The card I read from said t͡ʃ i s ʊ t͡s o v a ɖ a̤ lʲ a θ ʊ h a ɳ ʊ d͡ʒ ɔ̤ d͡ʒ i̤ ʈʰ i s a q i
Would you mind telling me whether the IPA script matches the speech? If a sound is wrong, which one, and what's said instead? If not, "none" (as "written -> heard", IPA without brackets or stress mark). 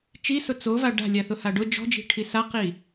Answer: ɳ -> ɖ